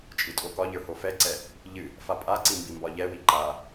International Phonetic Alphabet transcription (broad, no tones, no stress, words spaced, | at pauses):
t͡ʃʼɨtʼokɒʎə˞ hofɛǀɛ | ʎɨ | fapʼaǀi mbimbɒʎɛwi ǃa